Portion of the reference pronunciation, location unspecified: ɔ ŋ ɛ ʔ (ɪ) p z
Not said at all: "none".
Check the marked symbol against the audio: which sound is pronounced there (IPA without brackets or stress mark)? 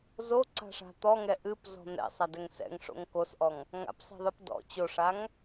ɨ